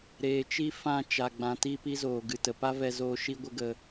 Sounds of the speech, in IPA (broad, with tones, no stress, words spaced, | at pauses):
ɾeː˨t͡ʃi˦ fã˦˨ t͡ʃa˨ɡ͡bã˨ti˧ pi˦zoː˨ɡɨ˨tə˨ pa˦vɛ˧zoː˧ ʃi˦ɡʷə˦ɡə˧